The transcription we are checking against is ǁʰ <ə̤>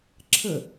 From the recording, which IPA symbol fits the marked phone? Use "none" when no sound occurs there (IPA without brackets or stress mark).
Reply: ə